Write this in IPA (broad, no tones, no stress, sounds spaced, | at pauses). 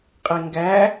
qʼ e ŋ ɡ æ